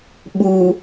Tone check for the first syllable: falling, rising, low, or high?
low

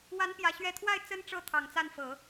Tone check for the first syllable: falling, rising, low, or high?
rising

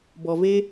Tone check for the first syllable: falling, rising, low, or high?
low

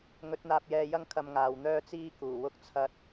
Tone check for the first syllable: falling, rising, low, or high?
rising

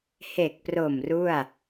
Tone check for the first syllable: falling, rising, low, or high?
low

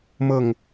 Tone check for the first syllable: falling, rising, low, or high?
falling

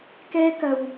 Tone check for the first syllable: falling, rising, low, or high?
high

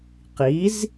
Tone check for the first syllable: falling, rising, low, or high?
rising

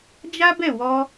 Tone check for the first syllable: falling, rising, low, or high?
high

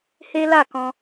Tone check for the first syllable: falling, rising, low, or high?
high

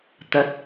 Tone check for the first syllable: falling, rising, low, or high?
low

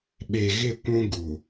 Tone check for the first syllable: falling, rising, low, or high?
low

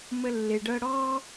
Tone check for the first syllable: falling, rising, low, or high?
high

